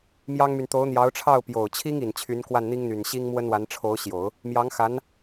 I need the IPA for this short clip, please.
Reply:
m j ɑ˥ ŋ m y˨ n t̪ o˧˥ ʊ̯ n̪ j ɑ˧˥ ʊ̯ ʈ͡ʂʰ ɑ˥˩ ʊ̯ p j o˨˩ ʊ̯ t͡ɕʰ i˥ ŋ i˨˩ n t͡ɕʰ y˧˥ n k w a˥˩ n n̪ i˥ ŋ n̪ y˨˩ n ɕ i˥ ŋ m w ə˥ n w a˧˥ n ʈ͡ʂʰ o˧˥ ʊ̯ ɕ j o˨˩˦ ʊ̯ | m j ɑ˧˥ ŋ x a˧˥ n

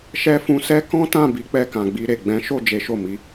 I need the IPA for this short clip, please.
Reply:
ʃ ɛ˦ f ũ˧ s ɛ˦ k ɔ̃˦ t ã˦˨ b i˨˦ k͡p ɛ˧ k ã˨ ɡ͡b i˧ ɾ e˨ ɡ͡b ɛ̃˨˦ ʃ o˦˨ d͡ʒ e˨˦ ʃ o˦˨ m i˨˦

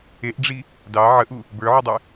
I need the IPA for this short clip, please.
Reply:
e ʔ ɖ͡ʐ i | d ɑ ʕ ə ʔ u | b ə˞ ʕ u dˤ ɨ

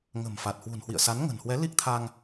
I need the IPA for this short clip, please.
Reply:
ŋ ə̤˨˩ m f a˨˩ t̚ h w ṳ˨˩ n h w ḭ˧˨ ə̯ s a˨˦ n ŋ ə̤˨˩ n h w ɛ˨˦ l i˦˥ k̚ t̪ʰ a˧ ŋ

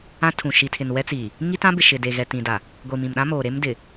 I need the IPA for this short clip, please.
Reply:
ã˦ tʰ ũ˨ ʃ i˨ tʰ ɪ˨ n w ɛ˦ t͡s i˨ | ŋ i˦ t ã˦ b ɪ˨ ʃ ɪ˨ d e˨ ɣ ɛ˨ t ĩ˨ d a˨ | ɡʷ i˨ m ĩ˨ m ɗ ã˦ m oː˨ ɾ e˦ m d ɪ˨

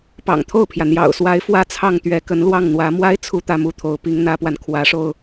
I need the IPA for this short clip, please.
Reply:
p ɑ̰˨˩ ŋ t̪ʰ o˥˩ ʊ̯ pʰ j ä˩ n̪ j ɑ̰˨˩ ʊ̯ s w a˧˥ ɪ̯ f w ä˥˧ t͡sʰ ɑ˥˩ ŋ t̪ ɥ ɛ˧˥ k ə˧˥ n l w ɑ˥˩ ŋ n̪ w ä˧˥ m w a˥ ɪ̯ t͡sʰ u˥˧ t̪ ä˥˧ m u˥˩ t̪ʰ o˧˥ ʊ̯ p i˧˥ ŋ n̪ ä˥ p w a˨ n kʰ w ä˧˥ ʂ o˧ ʊ̯

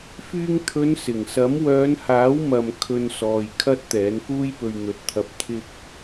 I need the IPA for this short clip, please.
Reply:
f yː˧ ŋ t̪ʰ ɵ˨˧ n s ɪ˨˩ ŋ s ɐ˨˥ m w œː˨˧ n h aː˨˥ w m ɐ˨ m kʰ ɵ˧ n s ɔː˨ j kʰ ɐ˥ t̚ t̪ ɛː˨˥ n k uː˥ j p ɵ˧ ɥ n̪ ɵ˨˥ t̚ t̪ʰ ɐ˧ p̚ t̪ʰ ɪ˥ k̚

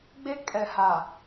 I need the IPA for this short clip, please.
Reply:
ɡ͡b e˦ kʼ ɛ˨ h a˨

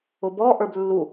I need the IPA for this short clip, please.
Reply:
ʊ b ɔ ʔ ə˞ b lː u

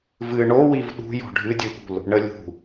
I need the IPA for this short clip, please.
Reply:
v ɨ ɳ o w i v ɗ ṳ j ɔ̤ ɖʱ ɨ dʲ ɨ ɠ ṳ l | ɳ ə lʲ ṳ

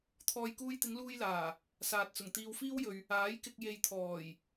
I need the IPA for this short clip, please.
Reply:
t̪ʰ ɔː˨ j k uː˧ j t̪ ɪ˨˧ ŋ l uː˥ j l aː˨˩ | s aː˨ t̚ t͡s ʊ˨˩ ŋ t̪ iː˨ w f iː˥ w j ɵ˨ ɥ | aː˨˥ j k ɪ˧ k̚ j e˨ j t̪ʰ ɔː˨˩ j

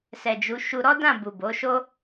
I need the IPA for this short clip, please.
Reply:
s ɛ˨ d͡ʒ u˨˦ ʃ u˧ ɾ ɔ˦ d ã˦˨ b u˨ b o˨˦ ʃ o˦

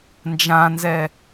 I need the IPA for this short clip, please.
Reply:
n d͡ʒ ã n z ɛ

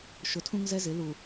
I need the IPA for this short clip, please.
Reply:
ʃ ʊ˨ tʰ ũ˦ ŋ z ɛ˦ z ɪ˨˦ l u˨

